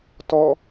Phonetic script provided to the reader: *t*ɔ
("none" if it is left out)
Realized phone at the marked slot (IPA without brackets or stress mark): t